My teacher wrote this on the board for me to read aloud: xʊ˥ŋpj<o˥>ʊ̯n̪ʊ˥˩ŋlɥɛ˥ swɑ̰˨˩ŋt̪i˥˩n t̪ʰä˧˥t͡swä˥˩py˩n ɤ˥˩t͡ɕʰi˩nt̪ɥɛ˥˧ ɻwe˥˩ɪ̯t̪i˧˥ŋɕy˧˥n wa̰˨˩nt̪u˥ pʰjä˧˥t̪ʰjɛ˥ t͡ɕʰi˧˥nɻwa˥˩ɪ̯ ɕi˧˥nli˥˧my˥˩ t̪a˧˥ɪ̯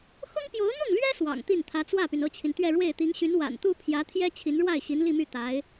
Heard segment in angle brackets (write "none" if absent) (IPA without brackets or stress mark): o˧˥